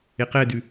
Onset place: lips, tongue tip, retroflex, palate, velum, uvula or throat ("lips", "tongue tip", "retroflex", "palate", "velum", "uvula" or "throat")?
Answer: uvula